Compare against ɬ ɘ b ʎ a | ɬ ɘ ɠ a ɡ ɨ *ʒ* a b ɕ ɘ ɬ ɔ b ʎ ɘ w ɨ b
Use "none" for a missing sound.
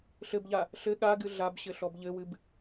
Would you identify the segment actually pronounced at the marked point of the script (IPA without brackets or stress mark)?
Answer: ɮ